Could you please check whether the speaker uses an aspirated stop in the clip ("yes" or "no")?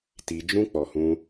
no